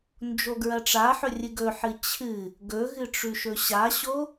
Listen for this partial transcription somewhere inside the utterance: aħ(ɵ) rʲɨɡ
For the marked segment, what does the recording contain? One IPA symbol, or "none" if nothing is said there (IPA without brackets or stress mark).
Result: ɵ